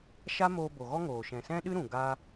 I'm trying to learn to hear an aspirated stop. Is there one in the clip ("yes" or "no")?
no